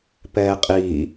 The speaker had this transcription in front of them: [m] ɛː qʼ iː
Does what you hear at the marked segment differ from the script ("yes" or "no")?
yes